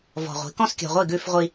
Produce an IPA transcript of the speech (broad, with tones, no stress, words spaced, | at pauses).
vɔ̤˨ʁʷi̤˨˦kɔ̃˦s kʲɔ̤˨ʁʷi˦˨ ɡʉ˦fʁʷi˦